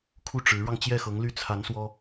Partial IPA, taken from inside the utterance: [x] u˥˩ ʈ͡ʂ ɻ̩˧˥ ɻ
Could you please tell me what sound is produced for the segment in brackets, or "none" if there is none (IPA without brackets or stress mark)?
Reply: kʰ